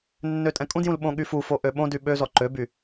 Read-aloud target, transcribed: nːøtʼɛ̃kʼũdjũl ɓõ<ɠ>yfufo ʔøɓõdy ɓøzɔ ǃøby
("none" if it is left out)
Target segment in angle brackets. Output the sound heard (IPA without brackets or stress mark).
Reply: ɠ